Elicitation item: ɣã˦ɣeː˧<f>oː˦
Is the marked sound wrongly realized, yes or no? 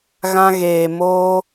yes